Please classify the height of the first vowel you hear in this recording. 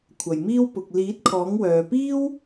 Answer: low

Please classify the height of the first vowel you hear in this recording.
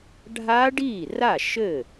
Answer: low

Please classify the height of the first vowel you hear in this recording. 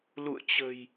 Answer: high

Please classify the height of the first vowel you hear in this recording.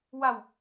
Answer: low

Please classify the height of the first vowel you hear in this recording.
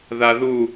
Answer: low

